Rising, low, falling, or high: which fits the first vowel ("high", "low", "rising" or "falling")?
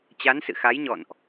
rising